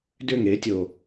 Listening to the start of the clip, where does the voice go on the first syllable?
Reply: falling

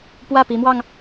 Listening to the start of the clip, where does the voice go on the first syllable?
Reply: falling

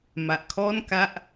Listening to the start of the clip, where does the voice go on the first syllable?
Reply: low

